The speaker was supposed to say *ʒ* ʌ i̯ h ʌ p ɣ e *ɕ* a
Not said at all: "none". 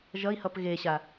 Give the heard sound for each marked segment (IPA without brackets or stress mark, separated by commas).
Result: ʒ, ɕ